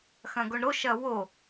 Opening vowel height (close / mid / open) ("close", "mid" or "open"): open